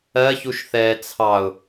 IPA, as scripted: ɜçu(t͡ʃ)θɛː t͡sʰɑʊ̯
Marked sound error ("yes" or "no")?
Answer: yes